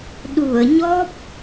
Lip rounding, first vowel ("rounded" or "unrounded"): rounded